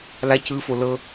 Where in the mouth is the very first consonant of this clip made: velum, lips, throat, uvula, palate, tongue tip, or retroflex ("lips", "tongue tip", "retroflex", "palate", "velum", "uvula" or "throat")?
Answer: tongue tip